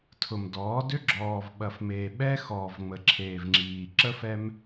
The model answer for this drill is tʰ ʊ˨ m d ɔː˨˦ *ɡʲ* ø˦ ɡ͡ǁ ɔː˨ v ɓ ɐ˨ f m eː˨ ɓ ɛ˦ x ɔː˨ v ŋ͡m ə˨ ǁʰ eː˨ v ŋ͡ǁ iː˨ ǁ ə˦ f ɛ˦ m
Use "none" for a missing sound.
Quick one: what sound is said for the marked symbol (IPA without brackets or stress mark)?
d